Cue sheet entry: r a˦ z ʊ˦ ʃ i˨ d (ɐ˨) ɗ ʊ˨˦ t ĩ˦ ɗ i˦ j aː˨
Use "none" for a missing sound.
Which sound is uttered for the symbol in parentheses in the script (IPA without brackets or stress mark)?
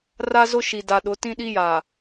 a˨